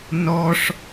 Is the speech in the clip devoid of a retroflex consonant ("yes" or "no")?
no